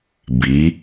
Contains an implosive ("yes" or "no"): no